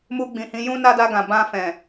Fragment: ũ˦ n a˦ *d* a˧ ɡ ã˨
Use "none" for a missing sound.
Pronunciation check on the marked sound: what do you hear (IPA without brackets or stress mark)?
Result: d